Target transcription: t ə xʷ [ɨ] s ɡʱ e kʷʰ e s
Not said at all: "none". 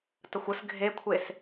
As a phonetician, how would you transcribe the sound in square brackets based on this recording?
ə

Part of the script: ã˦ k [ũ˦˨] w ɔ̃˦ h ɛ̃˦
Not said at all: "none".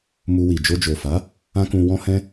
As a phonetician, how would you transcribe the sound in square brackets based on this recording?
ũ˧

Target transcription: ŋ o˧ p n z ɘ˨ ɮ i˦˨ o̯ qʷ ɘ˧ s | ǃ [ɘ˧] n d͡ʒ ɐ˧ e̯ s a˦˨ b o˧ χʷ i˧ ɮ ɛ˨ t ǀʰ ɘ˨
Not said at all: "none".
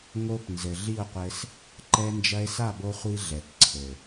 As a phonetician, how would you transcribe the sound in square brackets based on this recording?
ɛ˧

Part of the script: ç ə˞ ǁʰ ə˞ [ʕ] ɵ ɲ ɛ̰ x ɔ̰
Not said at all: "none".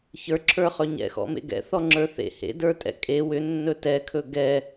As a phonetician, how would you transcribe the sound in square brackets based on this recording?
χ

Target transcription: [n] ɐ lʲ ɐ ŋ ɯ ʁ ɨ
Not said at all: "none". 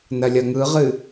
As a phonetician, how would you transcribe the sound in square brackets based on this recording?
n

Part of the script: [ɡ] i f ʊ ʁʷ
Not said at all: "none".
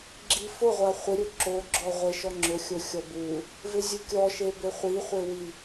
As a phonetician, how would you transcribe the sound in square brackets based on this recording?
ɡ͡ǁ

